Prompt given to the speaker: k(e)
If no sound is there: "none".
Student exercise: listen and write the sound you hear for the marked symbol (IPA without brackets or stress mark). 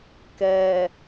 ɛ